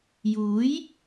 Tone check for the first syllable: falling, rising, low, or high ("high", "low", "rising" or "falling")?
rising